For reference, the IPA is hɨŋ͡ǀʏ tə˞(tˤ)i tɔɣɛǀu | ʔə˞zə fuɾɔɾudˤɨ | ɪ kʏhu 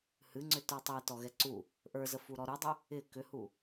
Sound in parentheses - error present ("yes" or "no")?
no